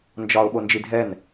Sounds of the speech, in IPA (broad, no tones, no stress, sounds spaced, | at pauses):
n d͡ʒ ɒ ʊ̯ ɓ o n d͡ʒ i dʱ ɛ n